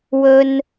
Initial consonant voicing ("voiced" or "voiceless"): voiced